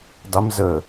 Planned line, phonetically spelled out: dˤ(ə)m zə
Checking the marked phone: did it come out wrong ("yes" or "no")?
no